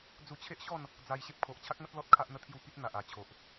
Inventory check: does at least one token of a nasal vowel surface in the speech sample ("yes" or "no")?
no